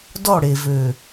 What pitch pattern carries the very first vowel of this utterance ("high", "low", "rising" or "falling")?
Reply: falling